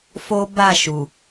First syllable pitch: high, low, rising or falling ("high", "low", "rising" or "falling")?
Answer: high